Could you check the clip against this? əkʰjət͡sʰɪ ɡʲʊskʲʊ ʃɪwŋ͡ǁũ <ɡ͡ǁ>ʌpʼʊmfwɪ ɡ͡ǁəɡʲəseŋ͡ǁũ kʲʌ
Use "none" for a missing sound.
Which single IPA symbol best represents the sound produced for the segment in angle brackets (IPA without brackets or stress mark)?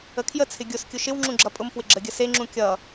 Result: ɡ͡ǁ